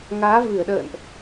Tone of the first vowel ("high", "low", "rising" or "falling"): rising